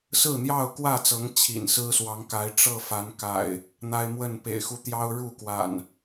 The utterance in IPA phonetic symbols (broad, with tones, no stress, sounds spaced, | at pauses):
s ɹ̩˥˨ n̪ j ɑ˥˨ ʊ̯ k w ä˥˨ t͡s ɤ˨˦ ŋ t͡ɕʰ ḭ˨˩ n s ɹ̩˦ s w ɑ˨˦ ŋ k a˨˦ ɪ̯ ʈ͡ʂ ɤ˥˨ f a˨˦ n k a̰˨˩ ɪ̯ | n̪ a˦ ɪ̯ m w ə˥˨ n p ḛ˨˩ ɪ̯ x u˨˦ t̪ j ɑ˦ ʊ̯ ɻ u˥˨ k w a̰˨˩ n